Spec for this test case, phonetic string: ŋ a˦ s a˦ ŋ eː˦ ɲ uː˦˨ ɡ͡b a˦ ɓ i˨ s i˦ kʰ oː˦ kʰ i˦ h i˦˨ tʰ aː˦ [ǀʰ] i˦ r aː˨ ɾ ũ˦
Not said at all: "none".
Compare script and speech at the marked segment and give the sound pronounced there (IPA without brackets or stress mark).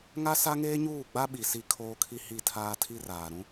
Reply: tʰ